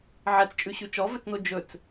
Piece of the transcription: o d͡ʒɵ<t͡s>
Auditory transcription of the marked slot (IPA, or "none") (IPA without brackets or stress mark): t͡s